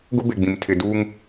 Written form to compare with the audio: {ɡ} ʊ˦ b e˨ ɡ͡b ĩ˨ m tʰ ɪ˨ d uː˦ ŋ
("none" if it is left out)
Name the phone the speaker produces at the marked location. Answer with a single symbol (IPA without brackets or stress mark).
ɡ